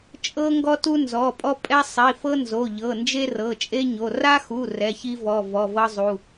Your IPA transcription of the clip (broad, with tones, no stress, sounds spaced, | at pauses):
t͡ʃʼ ɤ˥ ŋ ɡ ɔ˥ t u˥ n z ɔ˩˧˩ pʼ ɔ˥ pʼ ɛ˥ sˤ i˩˧˩ f ɤ˥ n z o˩˧˩ ʎ ɤ˩˧˩ n d͡ʒ e˥ r ɤ˩˧˩ t͡ʃʼ e˥ ɲ o˩˧˩ r a˥ x u˩˧˩ r ɛ˩˧˩ ç i˥ v ɔ˩˧˩ v ɔ˩˧˩ v ɤ˥ zˤ u˩˧˩